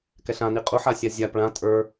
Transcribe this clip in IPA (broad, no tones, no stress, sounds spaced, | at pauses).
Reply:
k ɛ ɬ ã n i qʼ u ħ a sʲ a zʲ a p ɭ ã tʼ ə˞